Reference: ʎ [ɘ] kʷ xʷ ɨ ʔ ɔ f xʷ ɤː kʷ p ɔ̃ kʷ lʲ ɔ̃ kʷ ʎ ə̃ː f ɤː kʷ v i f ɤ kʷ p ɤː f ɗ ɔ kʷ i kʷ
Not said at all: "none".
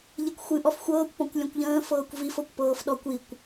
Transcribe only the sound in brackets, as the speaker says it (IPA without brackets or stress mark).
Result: e